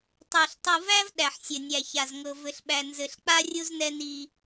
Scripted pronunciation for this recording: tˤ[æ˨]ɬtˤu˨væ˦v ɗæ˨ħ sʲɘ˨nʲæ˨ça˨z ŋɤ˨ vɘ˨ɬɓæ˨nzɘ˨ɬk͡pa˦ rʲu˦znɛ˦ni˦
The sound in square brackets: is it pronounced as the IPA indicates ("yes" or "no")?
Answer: yes